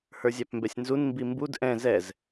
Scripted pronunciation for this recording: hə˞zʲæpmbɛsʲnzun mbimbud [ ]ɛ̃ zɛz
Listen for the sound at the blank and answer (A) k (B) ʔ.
B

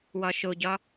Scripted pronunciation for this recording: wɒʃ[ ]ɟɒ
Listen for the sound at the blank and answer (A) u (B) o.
B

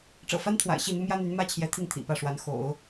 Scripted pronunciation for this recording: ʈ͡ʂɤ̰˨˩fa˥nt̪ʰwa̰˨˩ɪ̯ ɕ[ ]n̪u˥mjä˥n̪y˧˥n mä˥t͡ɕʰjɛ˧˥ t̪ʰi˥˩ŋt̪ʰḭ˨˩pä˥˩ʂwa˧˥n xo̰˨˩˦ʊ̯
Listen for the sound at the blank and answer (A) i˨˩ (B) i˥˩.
B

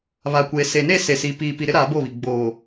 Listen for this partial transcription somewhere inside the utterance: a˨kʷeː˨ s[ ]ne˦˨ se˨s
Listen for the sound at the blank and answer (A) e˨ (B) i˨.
A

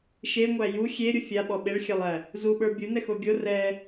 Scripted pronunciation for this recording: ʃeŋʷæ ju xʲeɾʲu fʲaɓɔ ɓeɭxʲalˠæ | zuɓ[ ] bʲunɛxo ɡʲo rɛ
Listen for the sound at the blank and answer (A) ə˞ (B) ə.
A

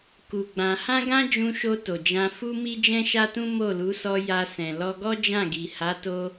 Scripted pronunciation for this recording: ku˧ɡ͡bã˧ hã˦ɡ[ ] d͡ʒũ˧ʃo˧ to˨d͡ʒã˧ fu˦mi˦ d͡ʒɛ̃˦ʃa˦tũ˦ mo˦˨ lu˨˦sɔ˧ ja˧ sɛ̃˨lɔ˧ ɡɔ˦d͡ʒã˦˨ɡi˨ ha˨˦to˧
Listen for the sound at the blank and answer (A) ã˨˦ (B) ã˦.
B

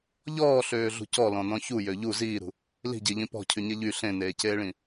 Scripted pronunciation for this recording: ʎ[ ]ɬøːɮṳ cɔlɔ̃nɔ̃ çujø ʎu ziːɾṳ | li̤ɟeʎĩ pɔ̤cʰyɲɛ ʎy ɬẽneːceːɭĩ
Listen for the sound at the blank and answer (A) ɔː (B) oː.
A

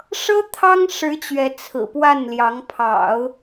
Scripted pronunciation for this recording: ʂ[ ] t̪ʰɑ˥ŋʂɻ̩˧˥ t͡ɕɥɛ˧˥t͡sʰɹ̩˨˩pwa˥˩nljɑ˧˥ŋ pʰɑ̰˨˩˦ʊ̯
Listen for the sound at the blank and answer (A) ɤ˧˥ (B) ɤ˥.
B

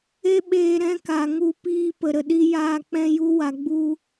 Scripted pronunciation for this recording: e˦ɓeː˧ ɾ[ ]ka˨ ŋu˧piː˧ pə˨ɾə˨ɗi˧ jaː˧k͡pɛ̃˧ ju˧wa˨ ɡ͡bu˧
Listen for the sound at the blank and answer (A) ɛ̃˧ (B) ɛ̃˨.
A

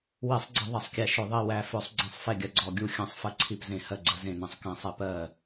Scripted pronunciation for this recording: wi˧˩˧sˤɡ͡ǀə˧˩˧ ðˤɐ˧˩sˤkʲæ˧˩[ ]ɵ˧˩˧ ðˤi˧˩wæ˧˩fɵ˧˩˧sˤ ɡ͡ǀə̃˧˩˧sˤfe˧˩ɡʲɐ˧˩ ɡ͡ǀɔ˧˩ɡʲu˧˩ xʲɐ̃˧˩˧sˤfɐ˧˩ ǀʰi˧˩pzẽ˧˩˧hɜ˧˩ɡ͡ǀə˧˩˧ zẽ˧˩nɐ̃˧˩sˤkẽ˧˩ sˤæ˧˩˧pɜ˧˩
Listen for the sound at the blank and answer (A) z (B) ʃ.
B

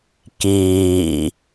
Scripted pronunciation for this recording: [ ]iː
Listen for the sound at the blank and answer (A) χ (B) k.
B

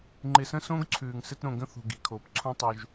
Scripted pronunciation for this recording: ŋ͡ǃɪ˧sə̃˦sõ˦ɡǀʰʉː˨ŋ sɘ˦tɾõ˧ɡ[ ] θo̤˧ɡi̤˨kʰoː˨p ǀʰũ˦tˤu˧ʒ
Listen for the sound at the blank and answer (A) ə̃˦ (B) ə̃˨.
A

